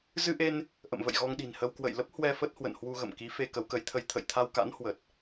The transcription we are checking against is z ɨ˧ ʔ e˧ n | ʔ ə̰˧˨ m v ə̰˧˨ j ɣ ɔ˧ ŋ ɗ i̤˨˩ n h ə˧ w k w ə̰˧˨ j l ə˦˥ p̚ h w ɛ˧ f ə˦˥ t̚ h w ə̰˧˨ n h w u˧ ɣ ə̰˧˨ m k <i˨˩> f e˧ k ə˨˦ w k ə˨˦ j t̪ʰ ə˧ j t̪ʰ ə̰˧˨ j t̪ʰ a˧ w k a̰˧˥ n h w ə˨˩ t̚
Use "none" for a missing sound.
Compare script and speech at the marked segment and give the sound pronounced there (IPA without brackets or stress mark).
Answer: i˨˦